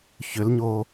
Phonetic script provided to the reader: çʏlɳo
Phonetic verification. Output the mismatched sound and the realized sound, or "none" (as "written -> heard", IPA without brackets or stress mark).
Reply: ɳ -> ɲ